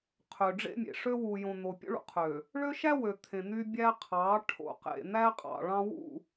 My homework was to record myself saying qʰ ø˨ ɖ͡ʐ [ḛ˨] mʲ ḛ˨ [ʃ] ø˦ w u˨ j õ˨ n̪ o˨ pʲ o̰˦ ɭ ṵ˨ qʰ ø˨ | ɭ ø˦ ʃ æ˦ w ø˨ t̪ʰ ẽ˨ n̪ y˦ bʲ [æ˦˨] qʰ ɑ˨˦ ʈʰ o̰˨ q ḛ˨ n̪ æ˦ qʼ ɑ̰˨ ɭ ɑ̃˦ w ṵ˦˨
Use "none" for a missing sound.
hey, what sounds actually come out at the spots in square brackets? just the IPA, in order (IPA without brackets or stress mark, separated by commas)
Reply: ḛ˦, ʂ, æ˦